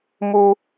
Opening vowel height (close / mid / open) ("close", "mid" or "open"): close